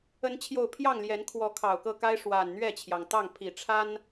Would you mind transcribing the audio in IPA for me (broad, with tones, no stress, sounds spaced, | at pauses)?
ə˨˦ n t͡ɕʰ j o˨˩ ʊ̯ pʰ j ɑ˥˨ ŋ l j ɛ˨˦ n kʰ w ɔ˨˦ kʰ ɑ˨˩ ʊ̯ k ɤ˥˨ k a˦ ɪ̯ ʂ w a˨˩ n n̪ ɥ ɛ˥˨ t͡ɕʰ j ɑ˩ ŋ t̪ ɑ˥˨ ŋ pʰ i˨˩ ʈ͡ʂʰ a˦ n